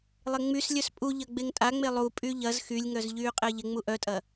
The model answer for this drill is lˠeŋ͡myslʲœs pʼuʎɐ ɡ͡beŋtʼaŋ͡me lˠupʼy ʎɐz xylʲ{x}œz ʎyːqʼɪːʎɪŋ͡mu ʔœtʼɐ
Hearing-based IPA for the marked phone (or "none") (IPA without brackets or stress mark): ŋ